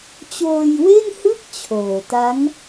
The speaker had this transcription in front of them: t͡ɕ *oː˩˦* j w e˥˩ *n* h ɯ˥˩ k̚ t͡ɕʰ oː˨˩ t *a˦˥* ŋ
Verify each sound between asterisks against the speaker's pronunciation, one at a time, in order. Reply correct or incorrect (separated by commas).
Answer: incorrect, correct, correct